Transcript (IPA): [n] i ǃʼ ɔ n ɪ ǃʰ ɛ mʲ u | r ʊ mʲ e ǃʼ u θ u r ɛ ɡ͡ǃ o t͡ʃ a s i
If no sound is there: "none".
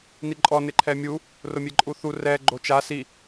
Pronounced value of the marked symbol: n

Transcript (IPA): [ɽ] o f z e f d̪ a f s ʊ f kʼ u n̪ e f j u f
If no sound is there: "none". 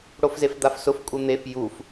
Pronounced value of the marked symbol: ɽ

